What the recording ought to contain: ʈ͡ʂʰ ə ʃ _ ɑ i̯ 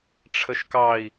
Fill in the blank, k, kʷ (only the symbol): k